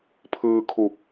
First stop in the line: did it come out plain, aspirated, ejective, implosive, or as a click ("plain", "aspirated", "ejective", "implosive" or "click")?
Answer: aspirated